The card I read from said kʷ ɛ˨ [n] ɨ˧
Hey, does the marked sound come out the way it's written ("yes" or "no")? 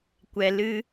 no